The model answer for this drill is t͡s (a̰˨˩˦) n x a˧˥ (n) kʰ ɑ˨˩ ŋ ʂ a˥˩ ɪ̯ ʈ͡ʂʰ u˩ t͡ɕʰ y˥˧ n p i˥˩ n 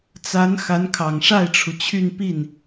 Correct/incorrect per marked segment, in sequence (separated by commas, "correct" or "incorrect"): incorrect, correct